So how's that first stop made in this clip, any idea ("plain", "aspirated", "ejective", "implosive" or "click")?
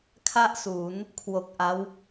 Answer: aspirated